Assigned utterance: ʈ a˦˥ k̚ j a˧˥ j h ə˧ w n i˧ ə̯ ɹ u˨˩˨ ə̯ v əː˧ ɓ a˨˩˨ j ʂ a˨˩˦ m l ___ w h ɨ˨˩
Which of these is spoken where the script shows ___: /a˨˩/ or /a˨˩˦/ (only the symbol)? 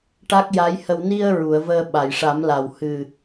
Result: a˨˩